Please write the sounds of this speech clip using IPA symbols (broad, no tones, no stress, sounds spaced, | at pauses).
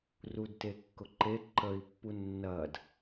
r u d t e kː ʊ ǃ e ǃ ə i̯ pː u nː ɐː d